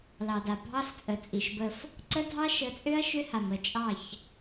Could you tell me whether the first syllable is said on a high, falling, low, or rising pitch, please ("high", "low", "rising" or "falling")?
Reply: low